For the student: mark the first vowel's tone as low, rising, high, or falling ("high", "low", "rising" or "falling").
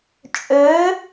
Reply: rising